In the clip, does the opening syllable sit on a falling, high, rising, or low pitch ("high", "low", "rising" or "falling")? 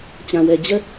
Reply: low